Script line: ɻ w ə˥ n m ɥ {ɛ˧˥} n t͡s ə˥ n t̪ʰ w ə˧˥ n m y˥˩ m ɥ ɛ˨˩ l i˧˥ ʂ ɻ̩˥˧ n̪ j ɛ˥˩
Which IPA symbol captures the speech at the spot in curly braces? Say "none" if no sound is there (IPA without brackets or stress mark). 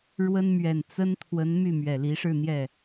ɛ˨˩